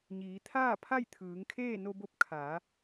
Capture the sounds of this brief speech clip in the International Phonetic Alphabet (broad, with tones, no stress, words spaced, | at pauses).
ɲiː˩˧t̪ʰaː˥˨pʰa˥˨j t̪ʰɯː˩˧ŋkʰeː˥˨ no˧bo˧p̚ kʰaː˩˧